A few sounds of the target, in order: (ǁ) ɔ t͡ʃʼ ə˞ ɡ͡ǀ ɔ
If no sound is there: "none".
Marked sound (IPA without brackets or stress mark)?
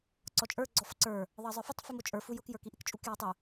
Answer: ǀ